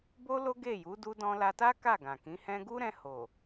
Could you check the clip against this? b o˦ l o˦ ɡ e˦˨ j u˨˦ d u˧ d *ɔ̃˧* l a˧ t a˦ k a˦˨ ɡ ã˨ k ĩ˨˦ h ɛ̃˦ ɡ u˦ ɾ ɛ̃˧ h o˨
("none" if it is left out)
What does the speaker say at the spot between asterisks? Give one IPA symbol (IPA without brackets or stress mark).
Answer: ɔ̃˧